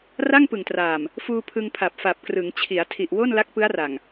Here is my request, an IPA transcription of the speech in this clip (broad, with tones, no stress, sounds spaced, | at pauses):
r a˥˩ ŋ p ɯ˨˩ ŋ t r aː˨˩ m | f uː˧ pʰ ɯ˧ ŋ pʰ a˨˩ p̚ f a˨˩ p̚ k r ɯ˩˦ ŋ t͡ɕʰ i˩˦ a̯ tʰ i˨˩ ʔ w o˥˩ n l a˦˥ k̚ p ɯ˦˥ a̯ r a˨˩ ŋ